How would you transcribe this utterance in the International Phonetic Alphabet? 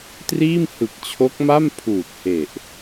t r iː˥˩ m h ɯ˨˩ k̚ t͡ɕʰ o˦˥ k̚ m a˥˩ m pʰ uː˨˩ t̚ h e˨˩ ʔ

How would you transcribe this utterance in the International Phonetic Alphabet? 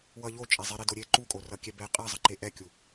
w ʌ ʎ o t͡ʃʼ ɛ zˤ i ɾ i d o ɾʲ e ǃ u kʼ o r ʌ kʲ ɛ b ɛ qʼ ɛ zˤ ʌ ǃ e ʔ ɛ kʲ u

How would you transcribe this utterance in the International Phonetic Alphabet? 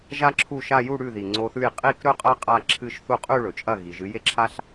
ʒ a˥ ǁʰ u˥˩ ʃ a˥˧ j u˥˧ ɽ ʉ˥˩ ð i˩ ŋ͡ǀ o˧ θ ʉ˥˩ j qʼ i˥˧ k ɾ ɵ˥˧ qʼ ɐ˥ qʼ a˥˧ ǁʰ ɨ˥˧ ʃ θ u˥˩ qʼ ʉ˥˧ ɭ ɵ˩ t͡ʃʼ ɐ˥˩ ɣ i˩ ʒ ɨ˨˥ j e˥ ǁʰ a˥ ɬ

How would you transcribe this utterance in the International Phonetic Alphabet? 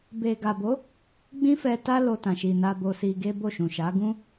b e˨ ɡ a˨ b o˨˦ | ɡ͡b ĩ˦ f ɛ˧ t a˦ l o˧ t ã˨ ʃ i˨ n a˧ b o˧ s i˧ ɡ e˦ b o˦˨ ʃ ũ˨ ʃ a˨˦ ɡ ũ˦

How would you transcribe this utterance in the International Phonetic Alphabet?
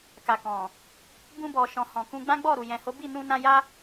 k a˨ k ɔ̃˨ | b ũ˧ b ɔ˨ ʃ ɔ̃˨ h ɔ̃˨ k ũ˧ ɡ͡b ã˦ ɡ͡b ɔ˦˨ ɾ u˨ j ɛ̃˨ h o˨˦ b i˦˨ n ũ˧ n ã˧ j a˦

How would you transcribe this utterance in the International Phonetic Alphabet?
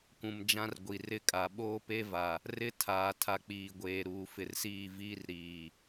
kʷ ũ˨ m d͡ʒ ã˦ r ɡʷ i˨ r ɪ˦ kʼ a˨ ɓ oː˦ p e˦ v a˨ | r ɪ˦ tʰ aː˨ tʰ a˨ k͡p iː˨ ɡʷ eː˨ ɾ uː˨ f ɪ˨ r s iː˦˨ v iː˦ r ɾ iː˨

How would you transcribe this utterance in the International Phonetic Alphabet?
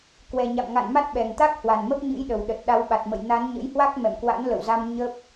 k w ɛ˨˩ ɲ a̰˧˨ m ŋ a̰˧˨ n m a˦˥ t̚ ɓ ɛ˨˩ ŋ t̪ a˦˥ k̚ h w a˨˩ n m ə˦˥ p̚ ɲ ɨ̰˧˥ j ɗ ə˨˩ w ɗ ə˨˩ t̚ ɗ a˨˦ w ɓ a˨˩ t̚ m ə̰˧˨ j n a˨˦ n ɲ ə̰˧˥ j h w a˦˥ k̚ m ɛ̰˧˨ m k w a̰˧˥ n l ə̰˧˨ w z a˧ m ɲ ə˦˥ p̚

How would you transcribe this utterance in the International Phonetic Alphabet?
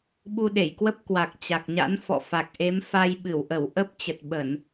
ɓ u˧ ɗ e˧˩ j k w ə˦˥ p̚ k w a˨˩ k̚ t͡ɕ a˨˩ k̚ ɲ a̰˧˥ n f ɔ̰˧˨ f a˨˩ k̚ ʔ e˨˦ m f a˧ j ɓ ɨ˧˩ w ʔ ə˧˩ w ʔ ə˦˥ p̚ t͡ɕ ə˨˩ t̚ ɓ ə˧˩˨ n

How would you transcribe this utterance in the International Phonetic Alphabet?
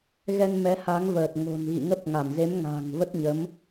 ɣ ɛ˧ n m ɛ˨˦ h a˨˦ ŋ v əː˨˩ t̚ ŋ o̤˨˩ n ɣ ḭ˧˨ ŋ ə˦˥ p̚ ŋ a˧˩ m z e˨˦ m ŋ a̤ː˨˩ ŋ v ə˦˥ t̚ ɲ ə˨˦ m

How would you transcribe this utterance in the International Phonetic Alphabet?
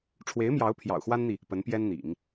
ʈ͡ʂʰ w e˧˥ ɪ̯ m j ɑ˧˥ ʊ̯ pʰ j ɑ̰˨˩ ʊ̯ x w a˥ n n̪ i˨ | p ə˧˥ n p j ɛ˥ n n̪ ḭ˨˩˦ ŋ

